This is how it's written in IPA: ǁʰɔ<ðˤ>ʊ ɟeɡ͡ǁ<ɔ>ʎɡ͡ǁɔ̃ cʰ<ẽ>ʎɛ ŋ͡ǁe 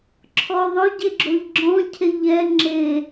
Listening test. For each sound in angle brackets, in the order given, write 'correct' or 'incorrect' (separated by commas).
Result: correct, incorrect, incorrect